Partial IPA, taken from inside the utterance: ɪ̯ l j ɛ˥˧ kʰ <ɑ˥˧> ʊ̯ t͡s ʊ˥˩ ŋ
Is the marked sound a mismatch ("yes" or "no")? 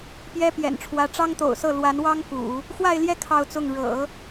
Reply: no